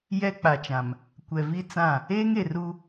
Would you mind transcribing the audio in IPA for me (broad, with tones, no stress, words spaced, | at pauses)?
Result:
jɛ˦k͡pa˨t͡ʃã˨m | kʷɛ˨vi˦t͡sã˦˨ | eː˦ŋe˨ru˦